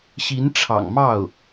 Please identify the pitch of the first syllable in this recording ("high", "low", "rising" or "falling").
rising